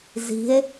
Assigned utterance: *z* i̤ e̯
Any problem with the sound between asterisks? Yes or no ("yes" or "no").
no